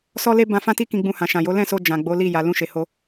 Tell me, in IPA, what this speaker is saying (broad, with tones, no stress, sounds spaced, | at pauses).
s ɔ˦ l e˦ b ã˦ f ã˦ t i˦ k ĩ˧ ɡ͡b ũ˧ h ã˨ ʃ ã˨ j o˨˦ l ɛ̃˦˨ s o˧ d͡ʒ ã˨ ɡ͡b o˨˦ l i˦˨ j a˨ l ũ˧ ʃ e˨ h o˧